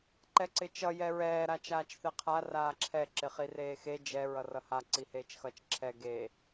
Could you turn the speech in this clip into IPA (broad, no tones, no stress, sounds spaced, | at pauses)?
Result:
ǃ ɛ ǀ ɪ t͡ʃ ʌ j ɛ ɹ ɛː ɾ a t͡ʃ aː t͡ʃ θ ɛ qʰ a r aː ǁʰ ɛ ǁ ɪ χ i r eː x e d͡ʒ ɛ ɹ ʌ r ʌ h a ǀ i h eː t͡ʃ x ʌ t͡ʃ ǁʰ ɛ ɡ e